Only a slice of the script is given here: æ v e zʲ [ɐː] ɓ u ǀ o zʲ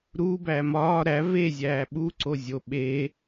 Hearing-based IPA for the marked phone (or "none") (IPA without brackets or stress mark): æː